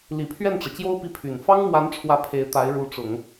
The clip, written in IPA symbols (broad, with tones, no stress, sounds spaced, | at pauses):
l i˨˩ pʰ ɥ ɛ˥˩ n ʈ͡ʂ ɤ˩ t͡ɕ j o˥ ʊ̯ p i˧˥ pʰ y˨˩ n f ɑ˥ ŋ m w a˧˥ n ʈ͡ʂʰ w ä˥˩ pʰ e˧˥ ɪ̯ t̪ a˧˥ ɪ̯ ɻ u˧˥ ʈ͡ʂ ʊ˨˩˦ ŋ